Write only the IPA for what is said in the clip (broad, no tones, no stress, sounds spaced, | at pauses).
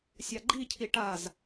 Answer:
sʲ a ɡ͡ǃ i cʰ i ʈ a z